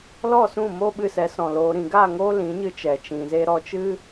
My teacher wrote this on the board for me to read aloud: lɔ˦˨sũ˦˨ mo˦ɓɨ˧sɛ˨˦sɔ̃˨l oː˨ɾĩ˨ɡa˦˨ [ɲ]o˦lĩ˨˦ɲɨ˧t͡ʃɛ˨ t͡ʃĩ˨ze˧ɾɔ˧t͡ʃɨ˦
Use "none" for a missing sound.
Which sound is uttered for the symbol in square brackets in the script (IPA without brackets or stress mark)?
ŋ